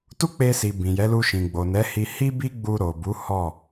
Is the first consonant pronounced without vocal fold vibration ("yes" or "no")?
yes